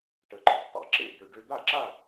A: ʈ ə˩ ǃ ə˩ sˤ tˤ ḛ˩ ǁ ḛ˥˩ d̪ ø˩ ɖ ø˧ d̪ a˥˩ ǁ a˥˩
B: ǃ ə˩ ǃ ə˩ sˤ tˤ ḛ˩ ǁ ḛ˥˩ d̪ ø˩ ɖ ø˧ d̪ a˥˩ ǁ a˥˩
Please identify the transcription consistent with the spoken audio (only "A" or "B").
A